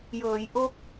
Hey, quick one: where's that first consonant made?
palate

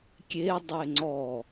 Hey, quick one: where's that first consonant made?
velum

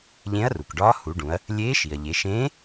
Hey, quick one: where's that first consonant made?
palate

